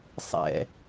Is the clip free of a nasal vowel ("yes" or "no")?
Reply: yes